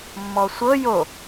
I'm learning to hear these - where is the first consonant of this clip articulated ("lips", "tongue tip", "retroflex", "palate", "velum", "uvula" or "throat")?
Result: lips